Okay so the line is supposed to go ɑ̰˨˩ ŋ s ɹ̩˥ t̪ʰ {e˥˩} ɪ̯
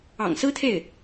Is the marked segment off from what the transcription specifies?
no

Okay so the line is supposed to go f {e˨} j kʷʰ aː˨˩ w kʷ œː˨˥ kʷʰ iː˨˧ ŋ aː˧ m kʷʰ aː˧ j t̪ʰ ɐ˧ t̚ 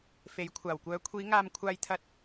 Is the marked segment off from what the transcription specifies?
yes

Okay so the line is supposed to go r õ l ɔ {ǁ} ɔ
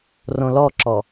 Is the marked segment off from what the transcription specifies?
no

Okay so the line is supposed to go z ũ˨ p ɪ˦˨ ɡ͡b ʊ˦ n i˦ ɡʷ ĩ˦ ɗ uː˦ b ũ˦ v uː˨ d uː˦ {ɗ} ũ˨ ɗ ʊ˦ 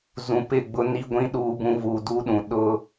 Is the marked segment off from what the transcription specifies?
no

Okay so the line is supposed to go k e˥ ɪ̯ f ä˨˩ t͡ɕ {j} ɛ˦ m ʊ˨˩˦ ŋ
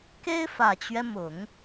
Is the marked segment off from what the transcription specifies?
yes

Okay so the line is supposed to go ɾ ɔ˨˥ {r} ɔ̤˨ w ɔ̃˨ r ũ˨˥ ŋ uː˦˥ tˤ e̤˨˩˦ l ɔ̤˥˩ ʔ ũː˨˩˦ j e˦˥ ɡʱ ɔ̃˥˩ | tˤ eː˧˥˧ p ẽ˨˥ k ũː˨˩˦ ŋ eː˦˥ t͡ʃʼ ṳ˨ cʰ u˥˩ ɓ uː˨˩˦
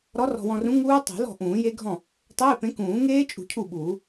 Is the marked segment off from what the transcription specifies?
no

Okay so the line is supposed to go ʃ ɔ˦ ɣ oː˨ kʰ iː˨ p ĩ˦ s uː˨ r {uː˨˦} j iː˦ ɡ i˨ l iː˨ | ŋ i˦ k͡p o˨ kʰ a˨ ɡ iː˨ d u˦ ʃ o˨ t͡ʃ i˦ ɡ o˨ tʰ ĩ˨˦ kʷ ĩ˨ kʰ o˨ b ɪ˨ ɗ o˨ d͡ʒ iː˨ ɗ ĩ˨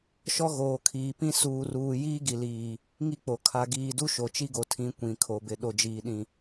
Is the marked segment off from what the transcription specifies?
yes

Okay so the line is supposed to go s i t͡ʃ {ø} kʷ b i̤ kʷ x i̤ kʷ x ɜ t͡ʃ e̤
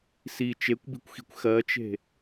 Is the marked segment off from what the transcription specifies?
yes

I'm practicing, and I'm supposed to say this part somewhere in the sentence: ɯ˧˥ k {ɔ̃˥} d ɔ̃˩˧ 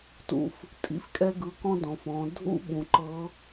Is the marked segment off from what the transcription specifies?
no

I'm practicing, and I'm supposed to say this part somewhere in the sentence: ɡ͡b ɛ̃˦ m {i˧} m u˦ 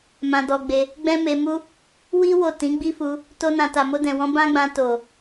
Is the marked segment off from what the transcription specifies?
yes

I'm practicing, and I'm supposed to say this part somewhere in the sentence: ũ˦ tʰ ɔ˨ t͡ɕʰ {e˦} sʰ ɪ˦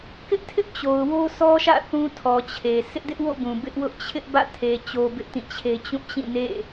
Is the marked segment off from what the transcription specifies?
yes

